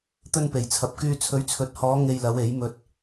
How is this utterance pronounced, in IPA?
t̪ ɵ˧ n p e˨˩ j t͡sʰ ɐ˨ p̚ k yː˧ t͡sʰ ɵ˨˥ ɥ t͡sʰ ɵ˨˥ t̚ h ɔː˨˧ ŋ e˧ j l ɐ˨˧ w e˨˥ j m ɵ˧ t̚

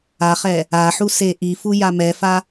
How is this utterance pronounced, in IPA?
a χ ɛ | a ħ u s e ʔ i f u j a m ɛ f a

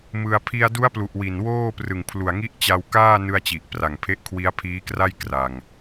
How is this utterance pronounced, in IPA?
m ɯ˧ a̯ pʰ i˧ a̯ d u˦˥ a̯ p l u˨˩ ʔ w i˨˩ n w oː˥˩ p r ɯ˨˩ ŋ pʰ l u˨˩ a̯ ŋ i˦˥ ʔ t͡ɕ a˧ w k aː˥˩ n ɯ˧ a̯ t͡ɕ i˨˩ ʔ p r a˨˩ ŋ pʰ e˦˥ ʔ kʰ w i˦˥ a̯ pʰ iː˦˥ k r a˥˩ j k r a˨˩ ŋ

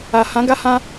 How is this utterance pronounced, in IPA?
a˨ h ã˨˦ ɡ a˧ h ã˧

